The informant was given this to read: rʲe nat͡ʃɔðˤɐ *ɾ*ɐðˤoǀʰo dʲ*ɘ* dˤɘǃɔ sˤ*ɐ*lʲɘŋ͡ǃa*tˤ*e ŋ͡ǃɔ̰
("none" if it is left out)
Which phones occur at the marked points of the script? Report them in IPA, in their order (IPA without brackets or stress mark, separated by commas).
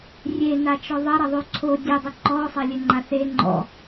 ɾ, ɘ, ɐ, θ